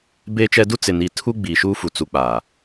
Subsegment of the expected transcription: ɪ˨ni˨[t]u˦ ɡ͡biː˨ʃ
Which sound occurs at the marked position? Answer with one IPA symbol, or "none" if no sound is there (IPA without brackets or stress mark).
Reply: tʰ